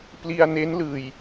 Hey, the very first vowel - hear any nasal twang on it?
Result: no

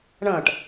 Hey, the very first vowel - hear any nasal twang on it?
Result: yes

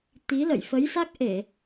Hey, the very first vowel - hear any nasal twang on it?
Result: no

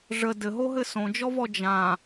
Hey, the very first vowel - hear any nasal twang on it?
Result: no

